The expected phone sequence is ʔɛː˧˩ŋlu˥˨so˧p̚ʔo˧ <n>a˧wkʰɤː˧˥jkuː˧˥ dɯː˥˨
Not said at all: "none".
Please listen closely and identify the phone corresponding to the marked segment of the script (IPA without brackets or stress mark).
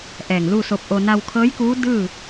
n